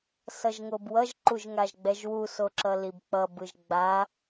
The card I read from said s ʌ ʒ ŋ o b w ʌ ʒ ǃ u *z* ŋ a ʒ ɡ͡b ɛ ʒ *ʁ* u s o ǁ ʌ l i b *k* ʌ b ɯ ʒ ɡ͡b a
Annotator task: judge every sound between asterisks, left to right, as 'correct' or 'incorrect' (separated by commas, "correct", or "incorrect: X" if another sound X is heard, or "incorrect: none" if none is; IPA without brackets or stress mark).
incorrect: ʒ, incorrect: w, incorrect: k͡p